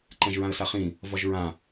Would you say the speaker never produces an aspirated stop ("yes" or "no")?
yes